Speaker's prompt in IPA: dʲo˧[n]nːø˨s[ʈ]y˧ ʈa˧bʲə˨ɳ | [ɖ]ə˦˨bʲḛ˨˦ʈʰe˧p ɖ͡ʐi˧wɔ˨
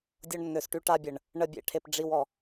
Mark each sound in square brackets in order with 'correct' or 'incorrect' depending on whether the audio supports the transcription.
incorrect, correct, incorrect

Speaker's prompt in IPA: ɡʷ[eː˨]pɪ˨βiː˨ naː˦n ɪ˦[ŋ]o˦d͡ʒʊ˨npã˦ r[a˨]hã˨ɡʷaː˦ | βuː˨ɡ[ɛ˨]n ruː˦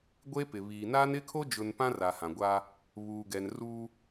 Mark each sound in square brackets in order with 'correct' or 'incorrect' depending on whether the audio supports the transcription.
incorrect, incorrect, correct, correct

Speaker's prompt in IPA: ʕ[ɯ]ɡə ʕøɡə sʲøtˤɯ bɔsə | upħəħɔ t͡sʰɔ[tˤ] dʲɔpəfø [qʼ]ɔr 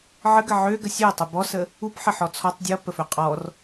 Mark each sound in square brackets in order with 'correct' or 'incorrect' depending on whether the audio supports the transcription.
incorrect, correct, correct

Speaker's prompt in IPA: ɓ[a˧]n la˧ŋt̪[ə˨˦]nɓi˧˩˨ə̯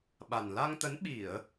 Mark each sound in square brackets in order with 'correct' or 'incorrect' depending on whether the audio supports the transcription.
incorrect, correct

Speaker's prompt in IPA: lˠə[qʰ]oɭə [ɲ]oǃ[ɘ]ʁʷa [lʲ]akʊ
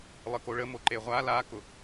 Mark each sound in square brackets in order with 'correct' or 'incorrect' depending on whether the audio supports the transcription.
incorrect, incorrect, incorrect, incorrect

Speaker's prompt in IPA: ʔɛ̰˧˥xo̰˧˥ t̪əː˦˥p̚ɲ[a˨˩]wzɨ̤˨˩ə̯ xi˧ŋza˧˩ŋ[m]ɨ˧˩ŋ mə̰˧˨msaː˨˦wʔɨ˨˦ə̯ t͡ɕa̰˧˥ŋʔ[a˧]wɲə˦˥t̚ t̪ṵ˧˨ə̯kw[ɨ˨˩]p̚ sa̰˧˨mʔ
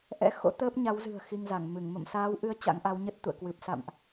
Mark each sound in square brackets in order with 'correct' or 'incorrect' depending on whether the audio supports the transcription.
incorrect, correct, incorrect, correct

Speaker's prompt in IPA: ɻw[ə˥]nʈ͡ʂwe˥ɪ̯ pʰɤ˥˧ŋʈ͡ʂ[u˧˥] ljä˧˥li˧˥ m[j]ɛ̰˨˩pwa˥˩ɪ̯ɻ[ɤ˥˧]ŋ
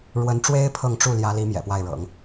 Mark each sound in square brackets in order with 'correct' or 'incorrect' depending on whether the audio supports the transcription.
incorrect, incorrect, correct, incorrect

